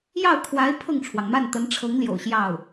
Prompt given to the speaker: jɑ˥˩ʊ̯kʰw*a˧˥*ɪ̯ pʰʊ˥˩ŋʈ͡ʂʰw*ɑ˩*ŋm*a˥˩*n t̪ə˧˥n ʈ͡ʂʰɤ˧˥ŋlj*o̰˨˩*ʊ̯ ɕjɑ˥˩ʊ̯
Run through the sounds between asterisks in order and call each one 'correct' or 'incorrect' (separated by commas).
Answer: correct, correct, correct, correct